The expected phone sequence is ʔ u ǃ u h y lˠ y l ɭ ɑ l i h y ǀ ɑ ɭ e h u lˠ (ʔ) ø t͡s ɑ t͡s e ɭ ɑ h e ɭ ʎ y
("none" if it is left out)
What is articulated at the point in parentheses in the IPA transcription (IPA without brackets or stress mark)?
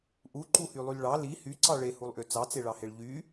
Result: ʔ